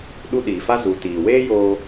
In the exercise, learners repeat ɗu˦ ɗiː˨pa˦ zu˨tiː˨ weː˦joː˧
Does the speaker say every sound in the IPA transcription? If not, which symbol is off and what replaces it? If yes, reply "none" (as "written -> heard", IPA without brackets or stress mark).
p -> f